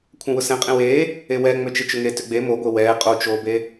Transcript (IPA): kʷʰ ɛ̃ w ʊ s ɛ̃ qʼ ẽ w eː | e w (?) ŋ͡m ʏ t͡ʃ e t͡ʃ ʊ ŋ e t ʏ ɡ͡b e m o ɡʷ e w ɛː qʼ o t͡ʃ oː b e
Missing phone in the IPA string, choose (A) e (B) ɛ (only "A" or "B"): B